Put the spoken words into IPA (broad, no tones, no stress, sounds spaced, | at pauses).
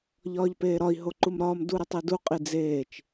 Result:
ʎ ɒː ʎ p eː ɾ ɒ i̯ ɦ o ǃ u m ɾ ɒː m d u ɾ e tˤ i d u qʼ i d͡z eː t͡ʃ